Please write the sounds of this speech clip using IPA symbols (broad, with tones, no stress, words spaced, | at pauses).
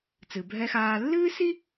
t͡sɨ˩bʱɛ˧xaː˧ lːɨː˥si˥